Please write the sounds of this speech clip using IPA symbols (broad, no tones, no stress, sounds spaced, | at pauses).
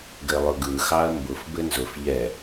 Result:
ɡ ɘ lˠ ʊ ɡ ɯ x ɑ ɐ̯ m b ʊ f b ɘ n z ʊ f ʎ ɛ